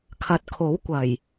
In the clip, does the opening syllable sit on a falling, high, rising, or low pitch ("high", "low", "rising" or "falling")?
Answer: rising